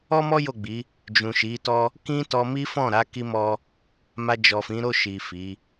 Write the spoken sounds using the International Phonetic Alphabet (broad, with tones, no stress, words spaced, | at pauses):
ɔ˦mɔ˦ jo˦˨ɡ͡bi˨˦ | d͡ʒũ˨ʃi˨˦tɔ˦ | kĩ˦ tɔ˧mi˦ fɔ̃˦˨ɾa˨˦ ki˧mɔ˧ | ma˧d͡ʒɔ˨fĩ˨˦ ɾo˦˨ʃi˨ fi˨˦